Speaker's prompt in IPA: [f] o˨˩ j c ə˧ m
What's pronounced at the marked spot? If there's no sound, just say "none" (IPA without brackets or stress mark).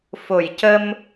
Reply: f